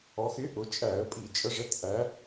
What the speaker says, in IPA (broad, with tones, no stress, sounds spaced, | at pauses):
ɔ˩˧ x ɪ˩˥ ʔ ʊ˩˧ t͡ʃʼ æ˧˩˧ ə̯ pʼ i˧˩˧ t͡ʃʼ ə˩˧ ʐ ɛ˩˥ t ʔ æ˩˧